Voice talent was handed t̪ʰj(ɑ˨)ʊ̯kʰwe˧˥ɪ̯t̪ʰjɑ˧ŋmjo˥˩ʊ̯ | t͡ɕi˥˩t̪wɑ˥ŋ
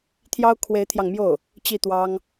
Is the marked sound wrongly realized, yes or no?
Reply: yes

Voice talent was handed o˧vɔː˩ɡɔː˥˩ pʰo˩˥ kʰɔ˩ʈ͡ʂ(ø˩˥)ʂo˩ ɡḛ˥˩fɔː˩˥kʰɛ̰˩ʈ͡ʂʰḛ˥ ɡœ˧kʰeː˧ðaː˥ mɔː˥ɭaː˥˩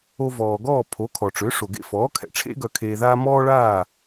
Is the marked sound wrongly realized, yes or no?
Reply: no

